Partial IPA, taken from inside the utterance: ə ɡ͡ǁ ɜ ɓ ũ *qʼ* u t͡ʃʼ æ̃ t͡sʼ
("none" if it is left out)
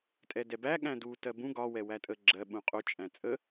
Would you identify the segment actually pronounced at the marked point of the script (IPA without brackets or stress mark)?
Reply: qʼ